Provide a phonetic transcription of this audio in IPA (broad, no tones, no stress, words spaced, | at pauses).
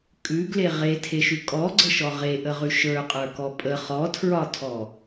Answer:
kʼʉɡle ʁetʰeʃʉ kʼɔɡ͡ǀəʃɔ ʁeʔəʁʉ ʃə˞qʼə˞kɔ pʼə χɔtʰɹɒtʰɔ